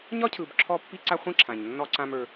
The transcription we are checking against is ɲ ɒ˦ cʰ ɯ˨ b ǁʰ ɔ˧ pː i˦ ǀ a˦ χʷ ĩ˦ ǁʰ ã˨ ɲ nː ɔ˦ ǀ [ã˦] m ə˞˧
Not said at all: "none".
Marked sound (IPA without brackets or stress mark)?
ã˦